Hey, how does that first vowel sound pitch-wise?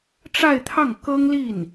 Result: falling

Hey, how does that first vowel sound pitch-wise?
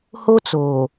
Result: high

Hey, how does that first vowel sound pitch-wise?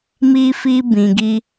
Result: high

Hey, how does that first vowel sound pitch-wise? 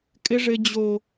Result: high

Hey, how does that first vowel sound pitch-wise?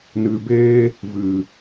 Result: low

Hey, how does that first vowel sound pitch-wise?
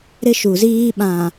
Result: high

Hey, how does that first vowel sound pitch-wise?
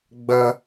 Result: high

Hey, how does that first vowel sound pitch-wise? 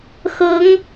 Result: rising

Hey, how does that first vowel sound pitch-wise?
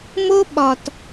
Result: high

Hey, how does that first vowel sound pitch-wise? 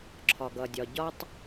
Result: low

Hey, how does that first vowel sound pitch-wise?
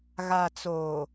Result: low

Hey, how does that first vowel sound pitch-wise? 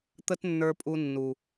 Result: high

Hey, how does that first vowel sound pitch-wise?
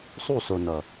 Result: falling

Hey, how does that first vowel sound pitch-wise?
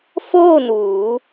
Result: falling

